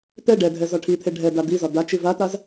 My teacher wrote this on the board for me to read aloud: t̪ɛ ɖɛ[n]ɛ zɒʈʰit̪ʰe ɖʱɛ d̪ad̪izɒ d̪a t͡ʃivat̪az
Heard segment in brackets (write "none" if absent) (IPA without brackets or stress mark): dʱ